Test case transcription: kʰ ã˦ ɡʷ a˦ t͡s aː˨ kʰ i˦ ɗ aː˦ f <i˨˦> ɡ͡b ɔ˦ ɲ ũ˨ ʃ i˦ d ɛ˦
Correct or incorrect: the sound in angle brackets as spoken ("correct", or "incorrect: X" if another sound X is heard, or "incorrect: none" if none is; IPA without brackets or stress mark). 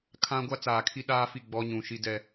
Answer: incorrect: i˦˨